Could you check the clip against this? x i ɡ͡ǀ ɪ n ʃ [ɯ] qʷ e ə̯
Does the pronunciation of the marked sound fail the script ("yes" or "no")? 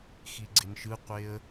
no